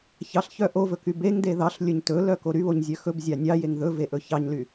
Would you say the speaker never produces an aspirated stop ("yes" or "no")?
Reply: yes